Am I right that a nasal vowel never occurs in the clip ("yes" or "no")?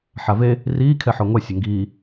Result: yes